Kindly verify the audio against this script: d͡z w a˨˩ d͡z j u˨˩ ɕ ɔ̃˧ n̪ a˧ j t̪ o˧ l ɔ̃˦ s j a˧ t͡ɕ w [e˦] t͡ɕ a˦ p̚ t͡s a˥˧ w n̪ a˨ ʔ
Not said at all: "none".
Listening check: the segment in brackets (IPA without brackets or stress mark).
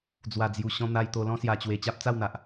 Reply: e˧